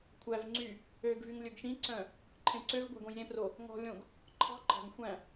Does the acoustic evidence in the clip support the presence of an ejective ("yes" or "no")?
no